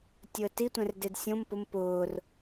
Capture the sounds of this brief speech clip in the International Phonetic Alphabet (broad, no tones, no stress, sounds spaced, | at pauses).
tʲ ʊ ə̯ t i tʷ ɛ̃ r d e d sʲ õ m p ʊ m p ʊː r